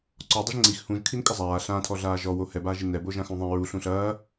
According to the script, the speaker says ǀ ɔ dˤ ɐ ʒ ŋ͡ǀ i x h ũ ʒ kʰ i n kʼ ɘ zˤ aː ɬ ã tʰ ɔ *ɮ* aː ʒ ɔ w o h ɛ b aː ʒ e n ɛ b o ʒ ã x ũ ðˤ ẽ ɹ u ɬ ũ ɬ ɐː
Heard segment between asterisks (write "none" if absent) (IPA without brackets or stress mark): ɮ